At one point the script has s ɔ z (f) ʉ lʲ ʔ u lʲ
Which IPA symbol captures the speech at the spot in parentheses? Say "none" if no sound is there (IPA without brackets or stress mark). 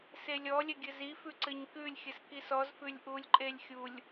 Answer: f